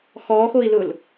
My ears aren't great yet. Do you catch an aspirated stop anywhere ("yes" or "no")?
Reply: no